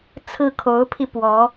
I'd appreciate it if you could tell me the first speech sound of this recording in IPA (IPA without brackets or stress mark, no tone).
t͡sʰ